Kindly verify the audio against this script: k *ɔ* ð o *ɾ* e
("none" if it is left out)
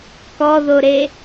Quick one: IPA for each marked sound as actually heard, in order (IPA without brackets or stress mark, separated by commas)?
ɔ, ɾ